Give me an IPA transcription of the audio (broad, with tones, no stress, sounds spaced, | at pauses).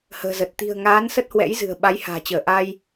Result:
h ə̤ː˨˩ z ə˨˩ t̚ t̪ i̤˨˩ ə̯ ŋ aː˨˦ n s ə˦˥ t̚ h w ɛ̰˧˥ j z ɨ̤˨˩ ə̯ ɓ a˨˦ j h a̤ː˨˩ t͡ɕ əː˧˩ ʔ a˧ j